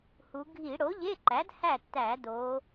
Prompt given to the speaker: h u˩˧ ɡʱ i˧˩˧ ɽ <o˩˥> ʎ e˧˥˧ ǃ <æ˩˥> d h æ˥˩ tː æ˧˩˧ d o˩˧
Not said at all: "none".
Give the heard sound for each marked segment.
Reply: o˩˥, æ˩˥

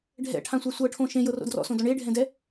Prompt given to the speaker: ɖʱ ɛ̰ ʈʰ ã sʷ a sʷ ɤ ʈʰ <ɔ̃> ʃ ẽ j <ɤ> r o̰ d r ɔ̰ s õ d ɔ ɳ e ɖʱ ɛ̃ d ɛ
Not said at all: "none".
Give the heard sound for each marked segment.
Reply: õ, ɤ

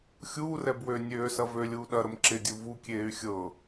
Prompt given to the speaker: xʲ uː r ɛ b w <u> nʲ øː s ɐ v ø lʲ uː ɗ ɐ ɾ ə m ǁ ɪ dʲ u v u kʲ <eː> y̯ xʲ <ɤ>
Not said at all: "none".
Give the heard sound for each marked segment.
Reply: ø, eː, ɤ

